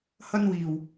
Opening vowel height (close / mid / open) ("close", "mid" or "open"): open